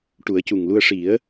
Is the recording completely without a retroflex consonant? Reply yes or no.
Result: no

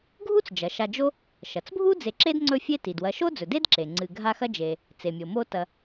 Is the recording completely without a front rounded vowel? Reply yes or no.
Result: yes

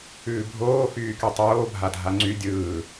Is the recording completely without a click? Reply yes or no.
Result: no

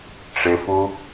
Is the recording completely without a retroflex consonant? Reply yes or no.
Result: no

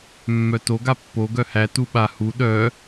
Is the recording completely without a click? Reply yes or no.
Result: yes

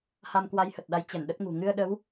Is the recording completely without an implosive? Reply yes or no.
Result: no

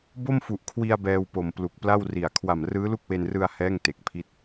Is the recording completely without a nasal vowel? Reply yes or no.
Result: yes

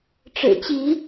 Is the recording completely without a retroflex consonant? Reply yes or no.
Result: no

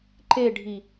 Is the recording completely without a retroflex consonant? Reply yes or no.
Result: no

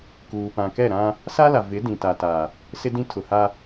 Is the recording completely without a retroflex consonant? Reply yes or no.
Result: yes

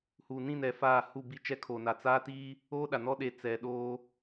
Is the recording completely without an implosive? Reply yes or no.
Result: no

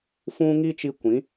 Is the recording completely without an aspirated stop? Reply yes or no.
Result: yes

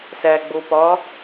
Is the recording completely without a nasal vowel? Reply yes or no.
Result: yes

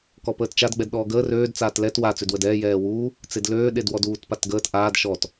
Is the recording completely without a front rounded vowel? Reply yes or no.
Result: no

